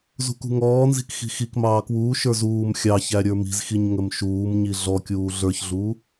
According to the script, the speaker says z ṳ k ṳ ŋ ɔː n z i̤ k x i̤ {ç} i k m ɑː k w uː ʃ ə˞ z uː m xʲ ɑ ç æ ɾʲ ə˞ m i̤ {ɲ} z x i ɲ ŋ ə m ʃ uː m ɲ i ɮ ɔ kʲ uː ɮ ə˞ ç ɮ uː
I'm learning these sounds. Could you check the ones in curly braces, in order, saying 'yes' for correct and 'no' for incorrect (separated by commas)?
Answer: no, no